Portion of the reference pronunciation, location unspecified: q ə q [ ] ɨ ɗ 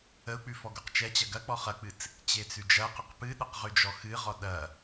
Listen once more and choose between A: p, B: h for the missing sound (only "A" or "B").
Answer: A